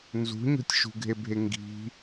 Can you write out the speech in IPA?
nzṳɲo̤tʲ ʃṳɡʱebʱe ŋɡi̤

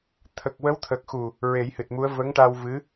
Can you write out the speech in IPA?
t̪ʰə˨˩k̚wə˧˥wt̪ʰəː˨˩k̚xu˨˩ | ɹe˨˩˦jhɨ˨˩t̚mu˧˥ə̯ və˧˥ŋʈa˧w vɨ˧˥

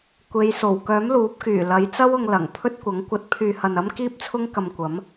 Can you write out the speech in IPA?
kʷe˨˧jso˨˩w kœː˨˥mluː˨˥p̚kyː˨˩ lɐ˨˧jt͡sɐ˥wʊ˧ŋ lɐ˨˩ŋ pʰɵ˥t̚kʷɐ˨˥ŋ kʷɐ˨˥t̚pʰyː˨hɐ˨n ɐ˥m kiː˥p̚t͡sʰʊ˥ŋkɐ˧mkʷɐ˨˥m

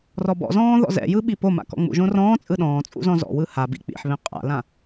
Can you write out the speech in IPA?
rɔbɔ̰zɔ̃ː ðɔ̰zɛ̰jɯ ɓipoma̰ kɔ̰ŋ͡mṵʒõ rɔ̃ː t͡sʼɯɗɔ̃ːt͡sʼṵ zɔ̃zɔ̰wɯ habḭ k͡pḭħβẽ qʼa̰lã

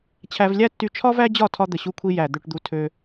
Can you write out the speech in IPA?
t͡ɕʰæ˧v lʲæ˦tːy˧ t͡ʃʰɒ˦væ˦d͡ʑɒ˦˨tʰɒ˧ d̪ə˨ɕu˧kʷʰi˧ jæ˨ d̪ø˨ʈd̪u˨ tʰø˧

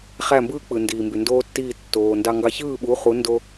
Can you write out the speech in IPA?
χæ˥˩ mbɯː˥k͡pɯ˩ ndiː˩mby˩ndoː˥tːiː˥˩ tːoː˩ ndɑ˧ŋɡɑ˧ çɯː˥˩ɓu˩˥ χu˩˥ ndo˥

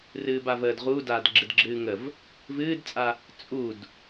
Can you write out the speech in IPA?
rɨːbavəːdʁu daːdɡ͡ǁɨdɡ͡ǁɨːŋəv | vɨːdt͡sʼa | t͡sʼud

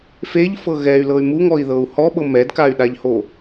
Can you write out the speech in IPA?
feʎfɤ ɣɛy̯lɤy̯ muŋɔi̯ðɤu̯ hɔɓɤ mɛdkay̯ɗaʎho

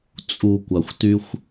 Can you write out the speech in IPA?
t͡sʼu˨ kʷa˨xʷty˦xʷ

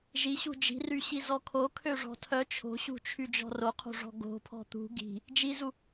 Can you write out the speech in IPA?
ʒi ɕṳd͡ʒi̤ry ɕizɔkʰo kʰøʐɔ̤tʰœ t͡ʃʰo̤ɕṳt͡ʃʰy d͡ʒɔ̤roqʰo̤ʐɔ̤ ɡo̤pʰɔ̤ t̪ṳ ɡi̤ | d͡ʒizu

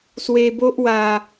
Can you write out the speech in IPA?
swe˧bo˦ʔ wa˨˩

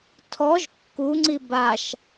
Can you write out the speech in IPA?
tʰɔʒ kːuŋ͡ǀi baʃ

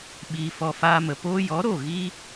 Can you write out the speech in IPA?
ɓiː˧fɔ˧faː˦mə˨ poː˧jɔ˨˦ɾo˦˨ ɣi˦

